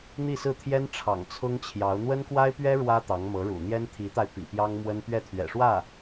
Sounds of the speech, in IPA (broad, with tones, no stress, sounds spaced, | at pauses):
n̪ i˥˧ s ɹ̩˥˩ t̪ʰ j ɛ˥ n ʈ͡ʂʰ ɑ̰˨˩ ŋ t͡sʰ ʊ˥ ŋ t͡ɕʰ j ɑ˧˥ ʊ̯ n̪ w ə˥ n k w a˥ ɪ̯ p ɥ ɛ˥ ɻ w ä˥ t̪ ɑ˧˥ ŋ m ɤ˧˥ ɻ ṵ˨˩ n̪ j ɛ˥ n t̪ʰ i˧˥ t̪ a˧ ɪ̯ p ḭ˨˩ p j ɑ˥ ŋ m w ə˥ n p ɥ ɛ˥˩ t̪ʰ ɥ ɛ̰˨˩ ʂ w ä˥˩